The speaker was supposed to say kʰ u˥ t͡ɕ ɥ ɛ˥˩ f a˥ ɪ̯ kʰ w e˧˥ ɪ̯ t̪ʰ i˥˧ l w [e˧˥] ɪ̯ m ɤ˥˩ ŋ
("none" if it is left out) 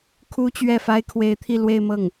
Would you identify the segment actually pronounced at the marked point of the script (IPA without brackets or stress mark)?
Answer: e˥˧